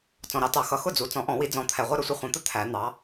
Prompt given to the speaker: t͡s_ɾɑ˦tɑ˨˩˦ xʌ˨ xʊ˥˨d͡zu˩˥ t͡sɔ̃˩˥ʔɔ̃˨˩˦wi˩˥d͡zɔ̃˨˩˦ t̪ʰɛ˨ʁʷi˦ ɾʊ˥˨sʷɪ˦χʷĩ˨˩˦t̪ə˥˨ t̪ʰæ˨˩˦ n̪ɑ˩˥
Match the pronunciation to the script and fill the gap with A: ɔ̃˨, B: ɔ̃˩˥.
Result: A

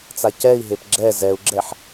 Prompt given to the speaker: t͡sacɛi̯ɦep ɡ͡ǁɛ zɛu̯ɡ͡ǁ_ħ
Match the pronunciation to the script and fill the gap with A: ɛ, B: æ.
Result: A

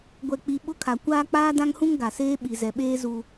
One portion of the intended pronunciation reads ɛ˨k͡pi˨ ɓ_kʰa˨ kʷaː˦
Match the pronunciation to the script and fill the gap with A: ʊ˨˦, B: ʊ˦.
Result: B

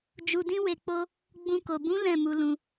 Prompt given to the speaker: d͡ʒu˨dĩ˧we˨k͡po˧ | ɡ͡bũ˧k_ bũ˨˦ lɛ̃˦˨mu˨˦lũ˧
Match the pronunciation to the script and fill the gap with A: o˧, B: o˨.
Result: B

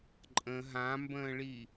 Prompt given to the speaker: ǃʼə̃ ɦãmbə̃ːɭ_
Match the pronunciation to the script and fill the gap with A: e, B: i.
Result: B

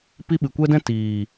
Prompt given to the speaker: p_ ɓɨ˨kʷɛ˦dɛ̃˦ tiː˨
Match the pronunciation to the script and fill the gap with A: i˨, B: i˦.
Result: B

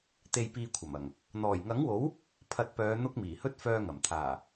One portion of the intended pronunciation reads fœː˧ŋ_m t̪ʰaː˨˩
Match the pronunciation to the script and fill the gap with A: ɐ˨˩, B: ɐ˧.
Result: A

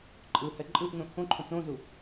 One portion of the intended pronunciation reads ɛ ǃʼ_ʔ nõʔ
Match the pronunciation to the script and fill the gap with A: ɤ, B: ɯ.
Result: B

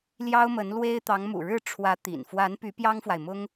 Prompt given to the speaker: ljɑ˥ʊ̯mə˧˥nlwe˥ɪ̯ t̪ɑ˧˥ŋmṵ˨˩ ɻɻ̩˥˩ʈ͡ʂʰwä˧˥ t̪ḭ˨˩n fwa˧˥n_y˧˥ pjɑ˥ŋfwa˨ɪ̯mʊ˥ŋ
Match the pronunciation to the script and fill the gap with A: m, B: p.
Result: B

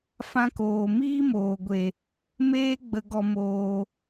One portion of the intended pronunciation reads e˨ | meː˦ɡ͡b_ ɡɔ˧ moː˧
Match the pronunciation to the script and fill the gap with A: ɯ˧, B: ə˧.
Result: B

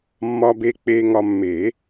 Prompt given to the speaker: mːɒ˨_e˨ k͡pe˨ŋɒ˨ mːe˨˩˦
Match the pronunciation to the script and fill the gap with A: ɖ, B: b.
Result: B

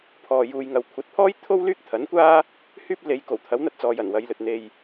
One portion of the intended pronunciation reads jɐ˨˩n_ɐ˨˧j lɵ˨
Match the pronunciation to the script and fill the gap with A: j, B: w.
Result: B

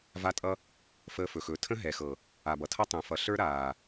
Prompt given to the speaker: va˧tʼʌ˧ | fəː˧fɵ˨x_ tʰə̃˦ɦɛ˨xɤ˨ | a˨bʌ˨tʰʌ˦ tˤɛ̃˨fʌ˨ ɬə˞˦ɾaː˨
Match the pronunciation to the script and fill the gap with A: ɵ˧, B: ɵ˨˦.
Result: B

